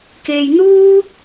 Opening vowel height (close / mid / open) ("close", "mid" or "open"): mid